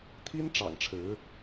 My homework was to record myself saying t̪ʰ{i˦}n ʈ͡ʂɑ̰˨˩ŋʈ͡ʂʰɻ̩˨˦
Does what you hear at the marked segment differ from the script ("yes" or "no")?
no